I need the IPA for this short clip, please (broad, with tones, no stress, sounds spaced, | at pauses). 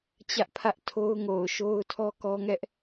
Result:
t͡ɕ ä˦ ʔ pʰ ä˦ ʔ tʰ o˦ ʊ̯ ŋ o˨ ʊ̯ ʃ o˦ ʊ̯ tʰ ɔ˦ k ɔ˦ ŋ ɛ˦ ʔ